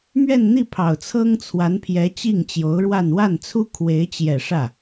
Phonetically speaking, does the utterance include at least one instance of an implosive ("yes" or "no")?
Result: no